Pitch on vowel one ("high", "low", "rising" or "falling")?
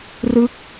falling